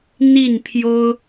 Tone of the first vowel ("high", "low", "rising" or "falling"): falling